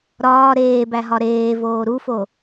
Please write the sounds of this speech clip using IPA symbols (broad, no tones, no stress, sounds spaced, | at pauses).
ɾ ɒː ɾ eː b æ ɦ ɒ ɾ eː v oː ɾ u f o